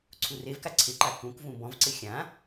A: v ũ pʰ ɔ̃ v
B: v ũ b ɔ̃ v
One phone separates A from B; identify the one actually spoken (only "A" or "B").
B